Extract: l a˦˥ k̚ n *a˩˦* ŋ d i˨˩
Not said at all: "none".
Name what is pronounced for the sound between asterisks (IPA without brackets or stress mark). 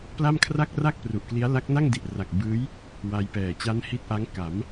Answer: a˥˩